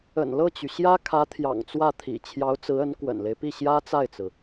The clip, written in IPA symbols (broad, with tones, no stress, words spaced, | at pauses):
ə̰˨˩nlɤ˥˩t͡ɕy˩ ɕjä˥kʰä˧˥ t̪ʰjɑ̰˨˩ŋt͡swä˥˩t̪ʰḭ˨˩ t͡ɕʰjɑ˧˥ʊ̯t͡sɹ̩˧˥ə˧˥n kwə̰˨˩nle˦ɪ̯pi˥˩ ɕjä˥t͡sa˥˩ɪ̯t͡sɹ̩˩